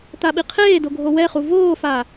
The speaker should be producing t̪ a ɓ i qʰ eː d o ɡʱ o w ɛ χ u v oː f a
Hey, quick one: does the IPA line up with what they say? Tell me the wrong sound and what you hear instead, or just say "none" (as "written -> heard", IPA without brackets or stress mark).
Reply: none